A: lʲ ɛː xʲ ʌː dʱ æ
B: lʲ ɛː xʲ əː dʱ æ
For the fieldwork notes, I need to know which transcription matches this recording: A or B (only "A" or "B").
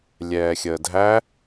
B